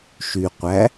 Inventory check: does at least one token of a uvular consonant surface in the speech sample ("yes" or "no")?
yes